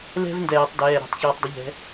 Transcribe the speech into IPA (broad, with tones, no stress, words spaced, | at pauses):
lɛ̤˧v ndɛː˧˩˧tˤdɛː˩˧˩ ɾo̤˧˩˧tˤçɔː˧tˤdˤə˧˥ʎɛ̤˧˥